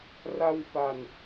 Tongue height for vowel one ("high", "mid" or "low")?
low